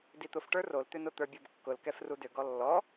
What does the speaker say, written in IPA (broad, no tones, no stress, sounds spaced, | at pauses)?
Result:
d i t̪ ʊ f ʈ ə˞ r o l t̪ ʏ n ʊ t̪ ə˞ bʲ ɤ b kː ʊ l k ɛ f r u d ʏ ɡ ɔ lː ɔ